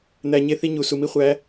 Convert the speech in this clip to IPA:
n̪æ˨ ɲe˦θi˦ɲu˨ su˨mi˦χʷæ˨˦

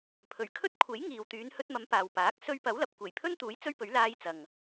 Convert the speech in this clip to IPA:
pʰɵ˨˩ɥ kʰɵ˥t̚kʷʰe˨˥j ŋiː˨wt̪yː˨˧n hɵ˧t̚mɐ˨˧m paː˨wpaː˨˥k̚ sɵ˧ɥpɐ˨˥w lɐ˨p̚kʷe˨˩jpʰɵ˥nt̪uː˨˥j t͡sɵ˥ɥpɵ˨˥ɥ laː˧jt͡sɐ˨ŋ

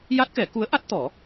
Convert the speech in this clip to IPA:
ja˦˥t̚kɛ˨˩˦ ku˧˥ə̯ʔa˦˥t̚ t̪ɔ˨˩˦

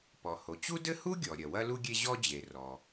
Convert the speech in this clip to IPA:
pɔ˩ho˩t͡ɕu˥dɘ˥ hu˥ɡʲɔ˩ɾʲɐ˩ wɐ˥lu˥ɡʲe˥ ʑɔ˥d͡ʑe˩ rɔ˩

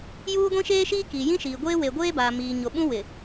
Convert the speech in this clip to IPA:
juː˦ɡʷĩ˦ʃeː˦ʃiː˦ ki˨ jĩ˦ʃiː˨ɡʷeː˦ we˨ɡʷeː˦baː˨ miː˨ ɲo˨ɓũ˦wɪ˨

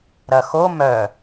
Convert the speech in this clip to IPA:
ɾɐxo mœ

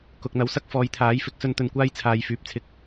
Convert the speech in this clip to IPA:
kʊ˨k̚n̪ɐ˨˥wsɐ˥k̚ fɔː˨˧jt̪ʰaː˨˥j fɪ˨˥k̚sɵ˧n t̪ɵ˨˩nkʷaː˧j t͡sʰaː˨jfyː˨p̚t͡sʰɪ˧k̚

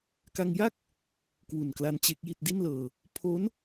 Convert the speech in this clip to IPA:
ka˧ŋja˥˩k̚ | kwu˨˩nkla˧n t͡ɕe˦˥k̚ji˥˩t̚ di˥˩nlɤː˧ | pʰo˦˥n

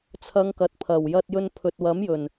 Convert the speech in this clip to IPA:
t͡sʰɐ˨˧ŋ kɐ˨t̚pʰɐ˨˩w jɐ˧t̚jɵ˧n pʰɵ˨t̚wɐ˨˥mjɵ˨˩n

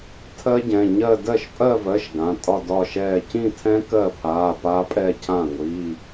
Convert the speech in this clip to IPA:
tʰɜ˦˥ɟɛ̃˩˧˩ɲɜ˥˧ dɜ˥˩ʃpʼɜ˥˧vɜ˩˧˩ʃ ɡã˩˧˩tʼɒ˥˧ dɒ˥˧ʃɛː˥˧ cĩ˥˧tʰɛ̃˦˥ kɜ˥˩pʰaː˩˧˩ pa˦˥pʼɛ˥˧cʰã˥˩ ŋʷi˩˧˩

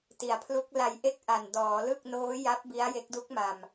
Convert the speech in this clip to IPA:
ti˩˦a̯pʰlu˦˥k̚ la˧jʔe˥˩k̚ʔa˨˩n dɔː˩˦lɯ˥˩k̚ noː˦˥ja˦˥p̚ bi˦˥a̯je˦˥k̚du˦˥k̚ma˨˩m

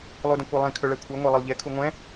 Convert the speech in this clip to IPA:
lˠudə̃kʷelˠĩ kʰɵɭɛkʷʰeŋʷe lˠəlˠʎekʰu ŋʷɛ̃

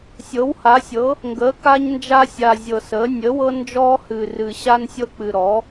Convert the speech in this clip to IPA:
sʲɤ˩˥wha˩˥sʲɤ˩˥ | ŋɡəː˩˥ka˦ɲnd͡ʒa˦sʲa˨˩ zʲɤ˨˩səː˩˥ nʲə˩˥wɤ˦ nd͡ʒɔː˦ hɨ˨˩rɨ˨˩ ɕa˦nsʲɤ˦k͡pɨ˨˩ ɾɔ˩˥

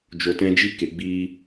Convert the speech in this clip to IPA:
d͡ʒo˨tɛ̃˧d͡ʒi˦ ke˨ɡ͡biː˦

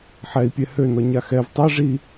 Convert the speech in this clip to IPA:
ħɛi̯pʲɛ hønɔ ɲaxɛv tˤɛ ʐi

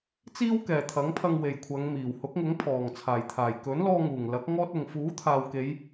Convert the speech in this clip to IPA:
t͡siː˥wkɛː˨t̪ʰɐ˨˥ŋpʰɐ˧ŋ we˨jkʷʰɐ˨˧ŋmiː˨˩whʊ˨˥k̚ ŋʊ˨˥ŋpʰɔː˨˩ŋt͡sʰaː˨˩jt̪ʰaː˨˩j kɵ˨˥nlɔː˧ŋuː˨˩ŋ lɐ˨˥k̚ ŋɔː˥t̚ʊ˨ŋ fuː˨˥t̪ʰaː˨w ke˨˧j

